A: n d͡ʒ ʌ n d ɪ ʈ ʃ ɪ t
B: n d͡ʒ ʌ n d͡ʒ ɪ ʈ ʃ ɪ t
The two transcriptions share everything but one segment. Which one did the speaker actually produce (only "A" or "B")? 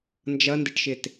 A